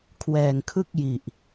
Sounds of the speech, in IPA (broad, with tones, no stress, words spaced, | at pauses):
kʰwɛː˨˩ŋkʰɯ˥˩k̚ji˨˩ʔ